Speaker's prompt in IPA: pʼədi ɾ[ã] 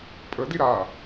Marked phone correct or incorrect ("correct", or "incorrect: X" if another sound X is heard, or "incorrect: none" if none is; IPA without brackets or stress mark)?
incorrect: a